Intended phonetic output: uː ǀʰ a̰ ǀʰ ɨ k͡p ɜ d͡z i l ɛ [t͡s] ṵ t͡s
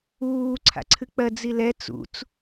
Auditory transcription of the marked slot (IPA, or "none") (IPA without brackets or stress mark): t͡s